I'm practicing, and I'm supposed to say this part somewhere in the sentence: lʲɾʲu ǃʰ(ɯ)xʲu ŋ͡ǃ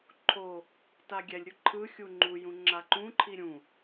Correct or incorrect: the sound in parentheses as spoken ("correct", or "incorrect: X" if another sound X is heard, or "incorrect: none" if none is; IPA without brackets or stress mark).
correct